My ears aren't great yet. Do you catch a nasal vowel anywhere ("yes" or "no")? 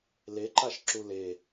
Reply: no